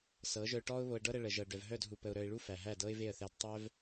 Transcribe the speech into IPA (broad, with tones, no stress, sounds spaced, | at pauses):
s ɤ˨˦ ʒ œ˧ ʊ̯ ʈ ɔː˦ ʊ̯ β o˧ ə̯ ɖ ɤ˦ ɾ ə˧ ɭ ə˨ ʒ ɤ˨ ɖ œ˨ v ɦ œ˦˨ d ɦ u˨ p ə˨ ʊ̯ ɾ œ˨ ɪ̯ ɭ u˦ f æ˨ ɦ æ˦˨ d ɤ˦ ɪ̯ v e˦˨ ə̯ θ æ˧ d tˤ œ˦ v